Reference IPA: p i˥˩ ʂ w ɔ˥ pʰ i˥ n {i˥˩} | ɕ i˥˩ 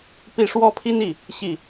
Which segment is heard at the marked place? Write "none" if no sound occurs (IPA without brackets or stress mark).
i˥˩